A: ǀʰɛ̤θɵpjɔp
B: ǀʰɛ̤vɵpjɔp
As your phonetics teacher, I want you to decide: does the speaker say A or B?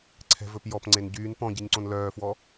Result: B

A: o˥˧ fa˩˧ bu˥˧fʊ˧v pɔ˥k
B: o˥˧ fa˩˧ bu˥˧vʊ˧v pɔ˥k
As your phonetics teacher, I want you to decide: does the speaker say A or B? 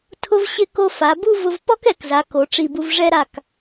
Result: B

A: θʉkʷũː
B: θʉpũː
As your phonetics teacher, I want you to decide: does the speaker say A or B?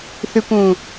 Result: A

